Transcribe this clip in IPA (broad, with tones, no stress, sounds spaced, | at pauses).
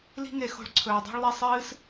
l i̤˦ ŋ e˧ x o̤˧ ɭ ǀʰ ɵː˨ dˤ o̤˦ ɭ lˠ e˦ sˤ ɨː˦ s